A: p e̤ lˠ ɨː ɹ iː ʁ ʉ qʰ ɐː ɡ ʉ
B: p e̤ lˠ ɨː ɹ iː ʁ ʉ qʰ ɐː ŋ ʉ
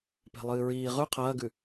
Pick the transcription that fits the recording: A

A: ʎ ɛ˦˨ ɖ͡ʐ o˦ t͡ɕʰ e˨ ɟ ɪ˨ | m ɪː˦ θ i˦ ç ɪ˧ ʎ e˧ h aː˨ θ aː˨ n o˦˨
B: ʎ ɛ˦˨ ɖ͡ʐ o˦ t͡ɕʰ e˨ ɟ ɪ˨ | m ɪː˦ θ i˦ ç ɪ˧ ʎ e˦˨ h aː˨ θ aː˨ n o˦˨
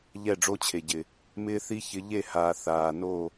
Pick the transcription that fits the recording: B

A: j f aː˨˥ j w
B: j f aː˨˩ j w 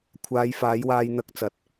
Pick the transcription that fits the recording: A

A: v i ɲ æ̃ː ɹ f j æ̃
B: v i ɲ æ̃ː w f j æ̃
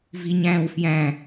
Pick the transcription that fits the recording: B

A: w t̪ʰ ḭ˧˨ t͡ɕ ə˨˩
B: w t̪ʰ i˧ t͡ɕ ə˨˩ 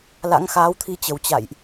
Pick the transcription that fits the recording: B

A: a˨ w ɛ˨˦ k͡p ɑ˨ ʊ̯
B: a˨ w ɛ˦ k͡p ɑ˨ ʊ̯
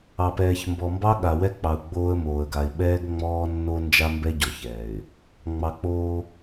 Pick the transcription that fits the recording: B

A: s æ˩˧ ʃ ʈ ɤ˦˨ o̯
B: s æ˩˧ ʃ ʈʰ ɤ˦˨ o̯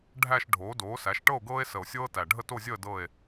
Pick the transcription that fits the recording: A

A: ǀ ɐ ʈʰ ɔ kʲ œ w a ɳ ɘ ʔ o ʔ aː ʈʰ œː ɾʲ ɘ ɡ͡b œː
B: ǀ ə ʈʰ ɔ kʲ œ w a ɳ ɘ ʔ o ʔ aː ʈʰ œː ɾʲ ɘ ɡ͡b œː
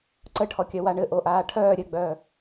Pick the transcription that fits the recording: B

